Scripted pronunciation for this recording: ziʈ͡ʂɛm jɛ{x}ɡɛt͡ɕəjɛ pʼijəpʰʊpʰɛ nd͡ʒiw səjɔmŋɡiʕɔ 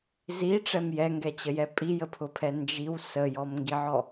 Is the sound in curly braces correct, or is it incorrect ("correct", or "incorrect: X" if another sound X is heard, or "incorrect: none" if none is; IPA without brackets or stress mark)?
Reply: incorrect: ŋ